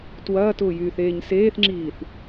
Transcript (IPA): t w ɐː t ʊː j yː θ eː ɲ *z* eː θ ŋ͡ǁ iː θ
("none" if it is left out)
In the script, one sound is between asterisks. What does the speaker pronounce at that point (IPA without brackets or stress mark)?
s